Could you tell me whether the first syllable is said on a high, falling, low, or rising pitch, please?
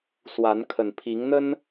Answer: rising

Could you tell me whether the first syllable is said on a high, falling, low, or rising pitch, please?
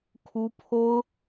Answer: high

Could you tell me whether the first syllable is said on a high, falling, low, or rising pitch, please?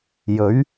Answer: rising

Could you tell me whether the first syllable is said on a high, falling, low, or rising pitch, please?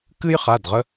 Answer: high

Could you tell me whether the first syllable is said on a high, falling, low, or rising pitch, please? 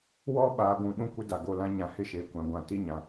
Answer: high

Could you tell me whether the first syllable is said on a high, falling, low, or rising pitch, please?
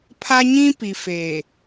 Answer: high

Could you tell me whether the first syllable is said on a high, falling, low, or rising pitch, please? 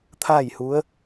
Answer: falling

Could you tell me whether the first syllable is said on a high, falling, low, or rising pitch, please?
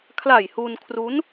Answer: low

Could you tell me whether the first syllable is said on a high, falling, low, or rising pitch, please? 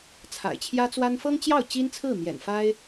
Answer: low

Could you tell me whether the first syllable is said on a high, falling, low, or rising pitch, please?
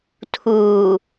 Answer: low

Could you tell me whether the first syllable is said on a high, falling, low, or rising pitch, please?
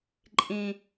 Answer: low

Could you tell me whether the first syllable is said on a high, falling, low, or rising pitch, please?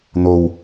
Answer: low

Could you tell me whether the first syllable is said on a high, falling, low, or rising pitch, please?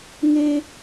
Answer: high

